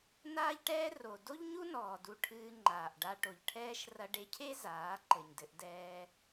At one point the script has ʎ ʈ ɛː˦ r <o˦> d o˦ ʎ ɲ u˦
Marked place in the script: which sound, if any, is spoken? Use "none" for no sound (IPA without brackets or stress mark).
o˨